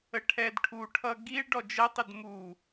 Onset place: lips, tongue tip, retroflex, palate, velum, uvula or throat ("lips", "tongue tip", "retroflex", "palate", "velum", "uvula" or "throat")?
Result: retroflex